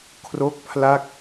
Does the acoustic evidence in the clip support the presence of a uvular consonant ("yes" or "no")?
no